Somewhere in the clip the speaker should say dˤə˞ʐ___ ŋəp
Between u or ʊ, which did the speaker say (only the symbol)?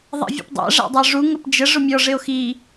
u